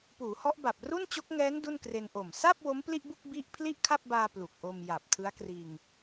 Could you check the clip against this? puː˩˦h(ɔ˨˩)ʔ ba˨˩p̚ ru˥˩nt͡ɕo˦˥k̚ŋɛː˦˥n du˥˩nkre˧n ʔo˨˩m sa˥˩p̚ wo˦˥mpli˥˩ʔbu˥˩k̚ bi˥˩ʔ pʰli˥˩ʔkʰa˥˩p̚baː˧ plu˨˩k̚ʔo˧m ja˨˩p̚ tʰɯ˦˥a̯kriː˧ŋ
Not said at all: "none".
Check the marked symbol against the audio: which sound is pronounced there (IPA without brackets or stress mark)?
ɔ˦˥